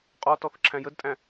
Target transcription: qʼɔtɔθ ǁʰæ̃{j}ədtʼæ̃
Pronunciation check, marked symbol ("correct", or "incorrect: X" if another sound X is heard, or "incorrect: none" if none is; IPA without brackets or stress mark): correct